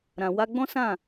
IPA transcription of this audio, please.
ɾã˨wa˧ɡ͡bɔ̃˦ sã˦˨

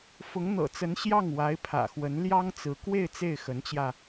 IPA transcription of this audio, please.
fʊ˧˥ŋn̪ɤ̰˨˩t͡sə˧˥n ɕjɑ˥˩ŋwa˧˥ɪ̯pʰä̰˨˩xwə˧˥n ljɑ˥ŋt͡sɹ̩˧˥ kwe˥˧ɪ̯ t͡se˥˩ɪ̯xə˧˥nt͡ɕjä˧

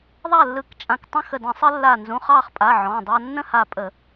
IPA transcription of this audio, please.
ðˤa˥˨lːɯ˧˩kt͡ʃʼã˧˩k tˤə̃˥˨xə˧˩də̃˧˩˧sˤə˦ lːa˧˩nzũ˩˧˩χ ɑ˥˨χpʼa˩˧˩ ʕɔ̃˩˧˩dˤɑ˦ nːə̃˥˨ha˧˩pʼə˧˩˧

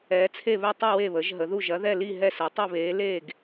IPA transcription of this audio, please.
ɛː˩˥t͡sʰe˥˩βɛ˥˩tˤi˥˩ we˥˩βəː˩˥ʒɦə˩˥ðu˥˩ ʒɐ˩˥ðɛ˥˩li˥˩ ɦɛ˥˩sɛ˩˥ tˤʏ˥˩βeː˩˥ le˥˩ɡ

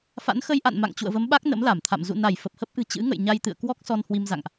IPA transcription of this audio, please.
fa̰˧˥nxə˧jʔa̰˧˨nma̰˧˨ŋ t͡ɕṵ˧˨ə̯və˨˦mɓa˦˥k̚ nə̰˧˥mla˧˩mt̪ʰa̰˧˨m zṵ˧˨na˧˩j fə˨˩p̚hə˦˥p̚ʔɨ̤˨˩ t͡ɕɨ̰˧˥ŋə̰˧˨j ɲa˧jt̪ɨ̰˧˨ə̯kwɔ˦˥k̚ sɔ˧nhwi˧mza̰˧˨ŋʔ

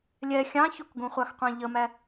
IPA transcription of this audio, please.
lʲɛ xʲɑ̃ çukɡũχʷɑxqʷæ̃ ʎəmæ

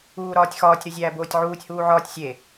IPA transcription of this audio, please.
uːɾɒːtʲxɒːtʲ ɾuzʲæːboːtʲʕuːtʲ huːʕɒːtʲ sʲe

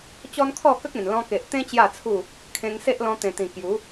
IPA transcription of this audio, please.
t͡ɕɔ˦nkʰɔ˥˧kə˦k̚ ẽ˨˩nlɔ̃˧ke˨ʔ t̪ẽ˧ t͡ɕja˥˧t͡sʰu˥˧ | kʰẽ˧ŋse˦ʔ lɔ̃˧t̪ẽ˨˩t̪ĩ˨˩ kju˨˦

